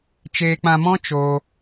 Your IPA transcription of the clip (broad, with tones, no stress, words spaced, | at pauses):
t͡ʃeː˧k͡pã˧mɔ̃˦ t͡ʃoː˧